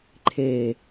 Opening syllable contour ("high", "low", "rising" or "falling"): low